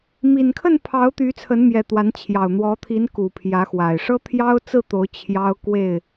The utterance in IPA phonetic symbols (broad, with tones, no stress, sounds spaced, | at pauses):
m i˨˩ n kʰ ə˥˨ n pʰ ɑ˨˦ ʊ̯ t̪ y˨˦ t͡sʰ ə˨˦ n m j ɛ˨˩ t̪ w a˨˦ n t͡ɕʰ j ɑ˨˩ ʊ̯ n̪ w ɔ˨˦ t̪ʰ i˨˦ n k u˨˩ pʰ j ä˨˦ x w a˨˩ ɪ̯ ʂ ɤ˦ t̪ʰ j ɑ˦ ʊ̯ t͡s ɹ̩˥˨ t̪ o˨˦ ʊ̯ t͡ɕʰ j ɑ˦ ʊ̯ k w e˥˨ ɪ̯